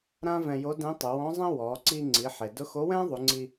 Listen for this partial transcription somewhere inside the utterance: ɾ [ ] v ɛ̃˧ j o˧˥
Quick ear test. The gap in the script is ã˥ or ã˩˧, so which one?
ã˥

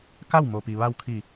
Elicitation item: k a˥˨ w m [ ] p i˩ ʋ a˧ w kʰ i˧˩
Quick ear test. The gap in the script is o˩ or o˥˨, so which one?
o˩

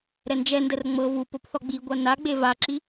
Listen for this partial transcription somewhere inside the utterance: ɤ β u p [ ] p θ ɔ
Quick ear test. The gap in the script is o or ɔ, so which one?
o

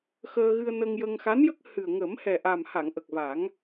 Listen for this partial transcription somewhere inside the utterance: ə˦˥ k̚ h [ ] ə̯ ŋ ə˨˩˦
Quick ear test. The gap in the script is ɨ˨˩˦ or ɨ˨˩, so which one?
ɨ˨˩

